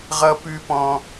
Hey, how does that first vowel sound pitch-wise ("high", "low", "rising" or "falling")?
high